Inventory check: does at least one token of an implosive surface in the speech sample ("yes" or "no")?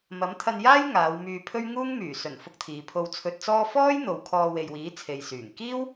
no